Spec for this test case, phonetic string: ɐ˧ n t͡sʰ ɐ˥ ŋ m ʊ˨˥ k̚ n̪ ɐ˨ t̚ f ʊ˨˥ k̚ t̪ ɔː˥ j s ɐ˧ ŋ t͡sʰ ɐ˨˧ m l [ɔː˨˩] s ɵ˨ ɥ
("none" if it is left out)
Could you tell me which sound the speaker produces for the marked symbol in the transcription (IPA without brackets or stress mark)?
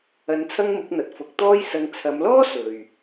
ɔː˥